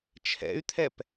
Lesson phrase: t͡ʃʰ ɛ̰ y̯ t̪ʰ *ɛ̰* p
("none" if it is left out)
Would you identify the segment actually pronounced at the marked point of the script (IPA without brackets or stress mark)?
ɛ